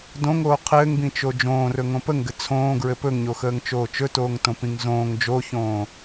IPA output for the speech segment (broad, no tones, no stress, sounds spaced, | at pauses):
d õ ŋ oː qʰ ɘː ŋ b ĩ t͡ʃ o d͡ʒ õː r ɵ ŋ õ p ə ŋ ɡ ɘ t͡sʰ õː ɡ ɹ ɘ p ɵ ŋ ɲ o x əː ŋ t͡ʃ oː t͡ʃ ɵ t oː ŋ t õ p ĩ ŋ z õː ŋ d͡ʒ o ç õː